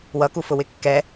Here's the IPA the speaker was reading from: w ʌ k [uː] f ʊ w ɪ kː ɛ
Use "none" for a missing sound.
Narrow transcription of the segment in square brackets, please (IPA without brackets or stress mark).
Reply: u